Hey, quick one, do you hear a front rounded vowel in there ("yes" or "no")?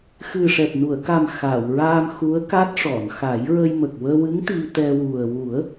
no